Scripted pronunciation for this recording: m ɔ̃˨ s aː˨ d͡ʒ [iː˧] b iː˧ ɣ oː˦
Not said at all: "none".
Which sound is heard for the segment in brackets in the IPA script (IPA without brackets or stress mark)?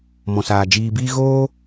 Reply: iː˨